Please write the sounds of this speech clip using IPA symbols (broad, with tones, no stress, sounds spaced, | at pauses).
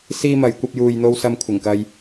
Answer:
s iː˧ m ɐ˨˧ j kʷ ɐ˧ p̚ j uː˨ j n̪ o˧ w s ɐ˧ m kʷʰ ɪ˨˩ ŋ k ɐ˧ j